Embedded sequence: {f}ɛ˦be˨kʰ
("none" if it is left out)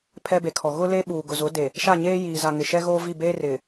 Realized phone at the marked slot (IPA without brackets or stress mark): pʰ